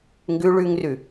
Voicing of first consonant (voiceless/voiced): voiced